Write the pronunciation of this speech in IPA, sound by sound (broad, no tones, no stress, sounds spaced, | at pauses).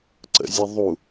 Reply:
ǀ ə̰ zʲ a ðˤ u